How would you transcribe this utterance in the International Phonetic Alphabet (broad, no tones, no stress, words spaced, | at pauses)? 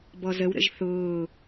bɔzəwɾə̰ʒ θʊː